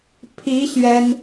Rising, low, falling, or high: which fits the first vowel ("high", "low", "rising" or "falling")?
rising